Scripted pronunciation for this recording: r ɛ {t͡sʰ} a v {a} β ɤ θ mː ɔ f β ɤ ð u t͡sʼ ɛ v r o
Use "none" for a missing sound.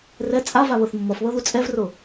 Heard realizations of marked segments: t͡sʼ, a

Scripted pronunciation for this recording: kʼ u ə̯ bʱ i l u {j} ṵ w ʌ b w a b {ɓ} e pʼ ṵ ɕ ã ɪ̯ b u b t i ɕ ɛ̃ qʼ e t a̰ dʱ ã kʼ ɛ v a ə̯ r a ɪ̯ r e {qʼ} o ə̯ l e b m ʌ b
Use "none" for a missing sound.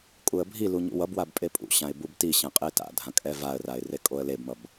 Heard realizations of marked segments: ɲ, pʼ, kʼ

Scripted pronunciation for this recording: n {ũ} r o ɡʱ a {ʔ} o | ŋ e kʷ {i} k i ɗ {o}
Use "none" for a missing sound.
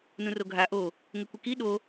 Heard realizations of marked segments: ũ, ʔ, i, o

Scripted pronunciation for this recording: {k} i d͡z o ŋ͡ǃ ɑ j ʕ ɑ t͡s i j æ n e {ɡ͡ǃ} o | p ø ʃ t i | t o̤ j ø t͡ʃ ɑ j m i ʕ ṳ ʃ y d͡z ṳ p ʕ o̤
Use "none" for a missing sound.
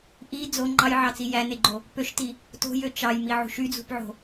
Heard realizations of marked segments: ʔ, ɡ͡ǃ

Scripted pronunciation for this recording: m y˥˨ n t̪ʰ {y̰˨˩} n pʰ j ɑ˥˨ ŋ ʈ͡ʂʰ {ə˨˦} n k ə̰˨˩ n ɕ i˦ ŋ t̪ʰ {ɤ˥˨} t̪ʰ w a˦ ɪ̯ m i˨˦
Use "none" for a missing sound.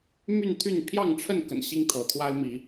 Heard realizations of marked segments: y˥˨, ə˥˨, ɤ˨˦

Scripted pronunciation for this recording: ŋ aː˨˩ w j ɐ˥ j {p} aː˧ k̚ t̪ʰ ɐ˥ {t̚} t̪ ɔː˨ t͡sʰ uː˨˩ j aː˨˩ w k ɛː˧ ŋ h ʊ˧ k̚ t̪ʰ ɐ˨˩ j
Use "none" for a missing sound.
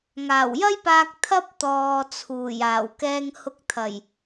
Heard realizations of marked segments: p, p̚

